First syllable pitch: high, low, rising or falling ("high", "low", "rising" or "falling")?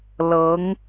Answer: rising